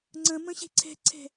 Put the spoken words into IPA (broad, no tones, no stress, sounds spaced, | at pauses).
ŋ͡ǀ ɐ̃ m ɐ̃ ɕ e̤ ǀʰ ɛ̤ ǀʰ ɛ̤